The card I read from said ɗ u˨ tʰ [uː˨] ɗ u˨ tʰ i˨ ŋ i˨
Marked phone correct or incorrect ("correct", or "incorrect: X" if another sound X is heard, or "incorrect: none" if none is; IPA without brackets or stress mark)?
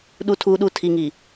correct